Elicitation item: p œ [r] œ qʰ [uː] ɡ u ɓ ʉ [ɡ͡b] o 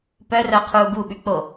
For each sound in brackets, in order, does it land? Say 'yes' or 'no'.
yes, yes, no

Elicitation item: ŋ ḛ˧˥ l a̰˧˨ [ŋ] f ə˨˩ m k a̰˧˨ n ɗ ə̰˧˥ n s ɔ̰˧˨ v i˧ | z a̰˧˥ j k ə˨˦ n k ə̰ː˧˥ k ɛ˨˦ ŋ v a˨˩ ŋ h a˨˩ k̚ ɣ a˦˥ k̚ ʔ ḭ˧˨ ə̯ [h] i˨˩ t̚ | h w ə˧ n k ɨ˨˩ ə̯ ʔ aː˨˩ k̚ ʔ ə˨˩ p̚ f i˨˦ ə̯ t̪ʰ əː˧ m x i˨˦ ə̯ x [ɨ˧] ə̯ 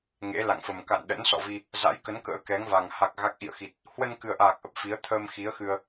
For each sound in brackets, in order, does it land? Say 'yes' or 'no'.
yes, no, yes

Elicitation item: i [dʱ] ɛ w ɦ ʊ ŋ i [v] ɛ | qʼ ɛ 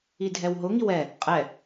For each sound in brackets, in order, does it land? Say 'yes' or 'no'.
yes, no

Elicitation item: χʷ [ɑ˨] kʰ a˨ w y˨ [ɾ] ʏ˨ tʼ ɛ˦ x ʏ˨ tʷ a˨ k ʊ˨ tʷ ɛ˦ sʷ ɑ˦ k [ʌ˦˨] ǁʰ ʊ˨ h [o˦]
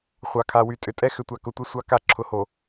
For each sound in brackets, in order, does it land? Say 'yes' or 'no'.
yes, no, no, no

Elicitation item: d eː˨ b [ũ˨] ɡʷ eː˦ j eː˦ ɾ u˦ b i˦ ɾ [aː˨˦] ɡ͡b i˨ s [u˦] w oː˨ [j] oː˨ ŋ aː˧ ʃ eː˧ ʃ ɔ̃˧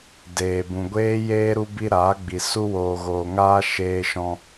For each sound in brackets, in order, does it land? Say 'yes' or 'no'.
yes, yes, no, no

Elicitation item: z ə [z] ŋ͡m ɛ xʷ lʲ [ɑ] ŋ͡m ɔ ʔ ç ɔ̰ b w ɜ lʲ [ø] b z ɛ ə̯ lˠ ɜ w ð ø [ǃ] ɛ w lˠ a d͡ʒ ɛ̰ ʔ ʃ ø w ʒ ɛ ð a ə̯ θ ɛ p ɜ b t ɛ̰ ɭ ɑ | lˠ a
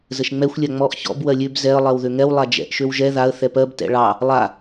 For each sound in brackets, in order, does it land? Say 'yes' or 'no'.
no, no, yes, no

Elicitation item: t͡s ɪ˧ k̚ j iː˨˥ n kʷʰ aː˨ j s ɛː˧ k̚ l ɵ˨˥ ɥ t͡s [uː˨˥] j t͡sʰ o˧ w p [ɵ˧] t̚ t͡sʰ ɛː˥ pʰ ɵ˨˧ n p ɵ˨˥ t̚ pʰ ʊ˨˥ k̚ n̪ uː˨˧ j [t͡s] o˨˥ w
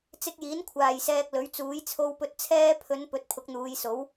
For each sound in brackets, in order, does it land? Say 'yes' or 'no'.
yes, yes, no

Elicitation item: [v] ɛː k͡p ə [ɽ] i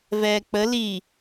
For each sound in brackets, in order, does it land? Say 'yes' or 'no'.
yes, no

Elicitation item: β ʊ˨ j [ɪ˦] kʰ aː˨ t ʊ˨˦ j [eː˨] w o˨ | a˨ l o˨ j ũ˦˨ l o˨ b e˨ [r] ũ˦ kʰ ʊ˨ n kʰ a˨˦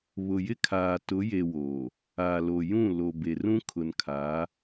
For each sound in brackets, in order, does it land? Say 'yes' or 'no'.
yes, no, yes

